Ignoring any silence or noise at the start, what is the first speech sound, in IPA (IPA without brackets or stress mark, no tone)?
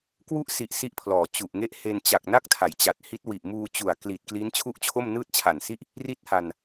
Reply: k